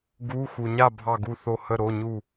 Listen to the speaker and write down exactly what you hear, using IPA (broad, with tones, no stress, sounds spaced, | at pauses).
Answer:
ɡ u˧˥˧ x u˨ ɲ a˥˨ bʱ ɑ˥˨ ɡ u˥˨ θ o˥˨ h ə˥˨ ɾ o˧˥˧ ɲ u˥˨